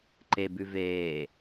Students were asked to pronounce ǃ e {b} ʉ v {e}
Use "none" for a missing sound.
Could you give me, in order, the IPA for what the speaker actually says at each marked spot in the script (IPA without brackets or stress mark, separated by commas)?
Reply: b, eː